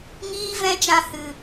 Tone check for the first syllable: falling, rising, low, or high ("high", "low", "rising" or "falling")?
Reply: high